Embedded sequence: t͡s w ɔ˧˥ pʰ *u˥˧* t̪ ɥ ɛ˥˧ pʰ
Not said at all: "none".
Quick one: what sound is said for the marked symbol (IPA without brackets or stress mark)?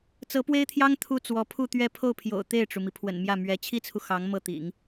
u˥˧